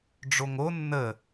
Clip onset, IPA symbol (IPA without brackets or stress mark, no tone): ɖ͡ʐ